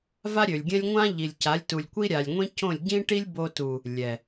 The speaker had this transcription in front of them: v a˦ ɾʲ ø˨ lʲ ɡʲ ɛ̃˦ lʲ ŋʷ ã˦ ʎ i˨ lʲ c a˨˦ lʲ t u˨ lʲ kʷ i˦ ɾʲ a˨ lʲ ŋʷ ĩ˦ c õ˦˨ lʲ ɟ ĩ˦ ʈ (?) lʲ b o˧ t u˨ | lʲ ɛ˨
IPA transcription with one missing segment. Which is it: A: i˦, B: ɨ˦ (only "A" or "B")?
A